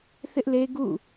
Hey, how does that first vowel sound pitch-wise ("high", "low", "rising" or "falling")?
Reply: high